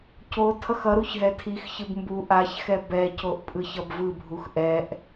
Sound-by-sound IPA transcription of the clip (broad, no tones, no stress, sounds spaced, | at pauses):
c o tʰ ʌ x ʌ ɾ u ç ɦ ɛ tʰ i x ç ɯ b m b u ʔ a ç x ɛ b ɛ c o ʔ pʼ ɯ ç ʌ b v ɯ bʱ u x ʔ ɛ ʔ